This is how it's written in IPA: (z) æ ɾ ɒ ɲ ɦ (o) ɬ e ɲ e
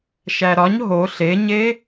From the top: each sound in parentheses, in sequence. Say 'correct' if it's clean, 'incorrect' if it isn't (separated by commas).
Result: incorrect, correct